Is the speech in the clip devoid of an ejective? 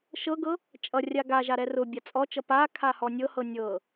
no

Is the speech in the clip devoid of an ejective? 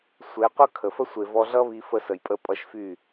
no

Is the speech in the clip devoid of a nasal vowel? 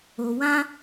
no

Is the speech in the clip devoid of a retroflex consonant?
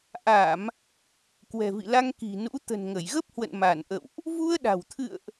yes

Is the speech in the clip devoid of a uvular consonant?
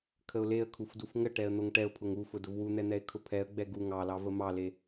yes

